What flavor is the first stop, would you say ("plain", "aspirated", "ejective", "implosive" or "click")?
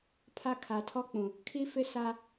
aspirated